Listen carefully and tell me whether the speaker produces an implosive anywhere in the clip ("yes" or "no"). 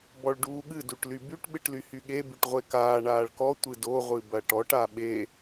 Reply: yes